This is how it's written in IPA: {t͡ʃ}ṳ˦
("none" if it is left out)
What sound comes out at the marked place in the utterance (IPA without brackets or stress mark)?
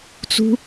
t͡s